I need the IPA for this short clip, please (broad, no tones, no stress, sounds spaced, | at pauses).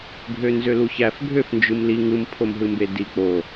ɡʱ ø n z ø l u ç æ f ɡʱ ø f n d͡ʒ ɯ m l i ŋ ɯ m pʰ o m ɦ ɯ m b e d i k͡p o